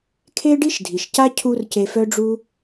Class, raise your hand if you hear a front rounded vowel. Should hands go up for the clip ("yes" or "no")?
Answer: yes